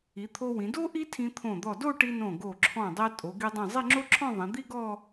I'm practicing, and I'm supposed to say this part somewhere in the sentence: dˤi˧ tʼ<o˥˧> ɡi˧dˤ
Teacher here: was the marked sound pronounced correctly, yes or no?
no